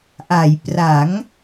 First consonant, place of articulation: glottal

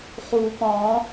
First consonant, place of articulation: uvular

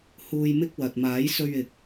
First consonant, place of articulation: glottal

